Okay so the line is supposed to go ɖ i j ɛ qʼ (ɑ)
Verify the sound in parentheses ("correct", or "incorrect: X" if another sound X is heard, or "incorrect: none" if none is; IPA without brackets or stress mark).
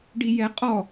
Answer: incorrect: ɔ